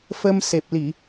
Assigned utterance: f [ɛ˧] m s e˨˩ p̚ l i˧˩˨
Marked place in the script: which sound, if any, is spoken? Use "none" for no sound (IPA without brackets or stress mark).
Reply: ə˧